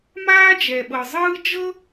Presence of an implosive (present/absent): present